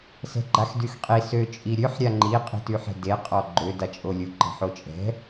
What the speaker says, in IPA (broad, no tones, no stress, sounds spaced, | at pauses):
s ɛ̤ ɡ͡ǃ a x d y x qʼ i s ø t͡ʃʼ i ɾʲ ø ħ ɾʲ a ŋ͡ǃ i qʼ i̤ t y ħ ɛ̤ d e qʼ ɔ ɡ͡ǃ ø d a t͡ʃʼ o lʲ u ǃ ə̤ ħ o t͡ʃʼ ɛ̤